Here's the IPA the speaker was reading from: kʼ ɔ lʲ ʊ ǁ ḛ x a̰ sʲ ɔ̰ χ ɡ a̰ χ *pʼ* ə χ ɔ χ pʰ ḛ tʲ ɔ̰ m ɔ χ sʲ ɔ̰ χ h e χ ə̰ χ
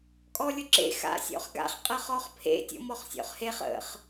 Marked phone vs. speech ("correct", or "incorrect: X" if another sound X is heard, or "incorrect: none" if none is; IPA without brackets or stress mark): incorrect: qʼ